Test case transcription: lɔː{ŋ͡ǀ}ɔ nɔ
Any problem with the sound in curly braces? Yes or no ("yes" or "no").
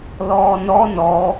yes